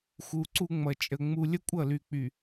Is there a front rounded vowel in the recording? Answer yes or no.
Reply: yes